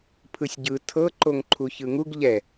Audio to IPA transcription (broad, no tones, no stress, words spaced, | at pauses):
pʰɯsʲɟɯ tʰɤ ǃoŋǃʰuçɯŋuɡ ʎɛ